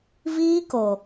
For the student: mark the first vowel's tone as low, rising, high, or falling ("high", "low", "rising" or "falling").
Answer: high